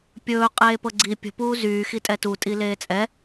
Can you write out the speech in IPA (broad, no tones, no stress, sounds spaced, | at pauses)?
pʲ ɵː qʼ eː p ɤ ɡ͡ǀ i pʲ ə̤ p uː z yː x i tʼ ɛ t u tʼ i l eː t͡sʼ ɛ